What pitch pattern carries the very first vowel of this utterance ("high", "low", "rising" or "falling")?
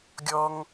high